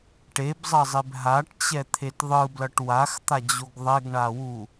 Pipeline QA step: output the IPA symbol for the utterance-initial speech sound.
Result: ʈ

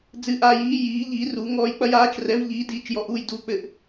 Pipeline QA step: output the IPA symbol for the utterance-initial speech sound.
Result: d͡z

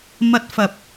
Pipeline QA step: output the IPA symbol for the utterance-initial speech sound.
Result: m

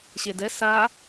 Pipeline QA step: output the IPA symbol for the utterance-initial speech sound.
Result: ɕ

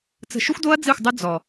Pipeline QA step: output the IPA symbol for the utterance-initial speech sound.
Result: t͡s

